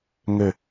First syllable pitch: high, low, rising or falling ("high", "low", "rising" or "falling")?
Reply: falling